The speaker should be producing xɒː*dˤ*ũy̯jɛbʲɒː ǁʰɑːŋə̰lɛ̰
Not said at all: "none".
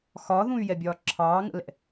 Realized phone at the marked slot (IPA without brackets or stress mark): ð